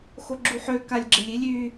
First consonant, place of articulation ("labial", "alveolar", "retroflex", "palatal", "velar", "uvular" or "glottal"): velar